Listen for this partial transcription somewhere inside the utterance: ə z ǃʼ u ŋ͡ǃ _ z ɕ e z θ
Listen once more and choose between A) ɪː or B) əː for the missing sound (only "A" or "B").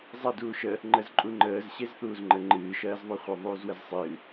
B